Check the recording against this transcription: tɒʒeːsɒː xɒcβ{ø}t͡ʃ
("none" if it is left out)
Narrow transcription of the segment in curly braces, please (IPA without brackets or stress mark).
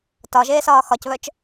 œ